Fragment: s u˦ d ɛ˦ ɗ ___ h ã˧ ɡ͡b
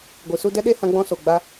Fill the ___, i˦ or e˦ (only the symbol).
e˦